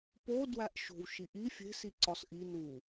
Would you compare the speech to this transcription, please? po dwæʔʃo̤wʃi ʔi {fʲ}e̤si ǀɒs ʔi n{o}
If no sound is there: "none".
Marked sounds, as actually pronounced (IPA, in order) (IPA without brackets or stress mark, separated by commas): fʲ, u